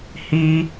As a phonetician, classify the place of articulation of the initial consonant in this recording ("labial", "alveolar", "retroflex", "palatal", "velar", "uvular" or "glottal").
glottal